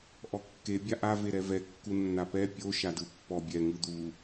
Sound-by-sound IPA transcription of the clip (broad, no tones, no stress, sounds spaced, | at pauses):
ʔ ɔ kː e bʲ a ʔ a v e ɾ ɛ v ɛ kː u nː a p ɛ pʲ o ʃ a d ɯ pː ɔ bʲ ɛ ŋ ɯ d̪ u